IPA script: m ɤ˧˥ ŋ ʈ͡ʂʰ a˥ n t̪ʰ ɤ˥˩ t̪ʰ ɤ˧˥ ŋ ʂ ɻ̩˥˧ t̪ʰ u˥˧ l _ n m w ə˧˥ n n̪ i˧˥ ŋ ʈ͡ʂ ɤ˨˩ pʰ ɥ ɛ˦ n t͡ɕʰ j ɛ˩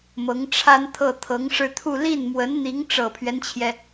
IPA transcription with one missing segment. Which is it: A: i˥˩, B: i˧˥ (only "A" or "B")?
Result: A